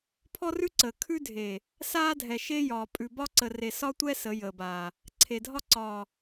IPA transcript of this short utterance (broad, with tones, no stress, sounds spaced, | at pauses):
pʰ ɔ˦ r ʉ˦ ǀ əː˨ kʰ ʉ˦ dʱ e˨ | s aː˦ dʱ ɛ˨ ʃ e˦ j ɒː˨ pʼ ʉ˨ b ɒ˦ ǀ ə˨ r e˨ s ɒ˦ tʷ ɛ˦ s ə˨˦ j əː˨ b aː˨ | ǀʰ e˨ dʱ ɒ˦ ǀ ɒː˨